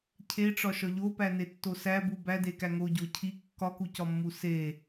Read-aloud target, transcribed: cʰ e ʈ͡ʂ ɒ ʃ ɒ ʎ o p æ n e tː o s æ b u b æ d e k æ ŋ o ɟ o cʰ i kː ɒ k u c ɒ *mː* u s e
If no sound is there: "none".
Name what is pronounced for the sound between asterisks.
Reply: mː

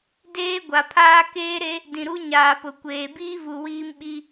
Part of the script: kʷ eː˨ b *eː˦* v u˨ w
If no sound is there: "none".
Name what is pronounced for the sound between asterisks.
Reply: iː˦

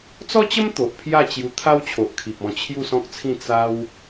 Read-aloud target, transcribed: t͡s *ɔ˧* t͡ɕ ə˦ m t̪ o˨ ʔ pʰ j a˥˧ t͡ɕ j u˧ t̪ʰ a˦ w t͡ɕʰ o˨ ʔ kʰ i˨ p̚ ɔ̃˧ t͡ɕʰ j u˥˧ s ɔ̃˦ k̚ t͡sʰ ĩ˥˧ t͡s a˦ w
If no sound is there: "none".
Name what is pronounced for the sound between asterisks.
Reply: ɔ˦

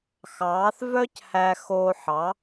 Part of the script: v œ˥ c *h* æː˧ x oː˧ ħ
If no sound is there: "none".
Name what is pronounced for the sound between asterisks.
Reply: h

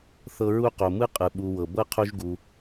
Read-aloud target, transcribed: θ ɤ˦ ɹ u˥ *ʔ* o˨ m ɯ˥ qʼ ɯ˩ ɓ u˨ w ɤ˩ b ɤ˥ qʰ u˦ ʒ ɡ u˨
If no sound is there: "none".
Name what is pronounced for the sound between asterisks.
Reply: q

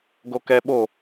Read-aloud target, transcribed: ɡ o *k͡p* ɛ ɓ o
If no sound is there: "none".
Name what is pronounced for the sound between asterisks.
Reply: k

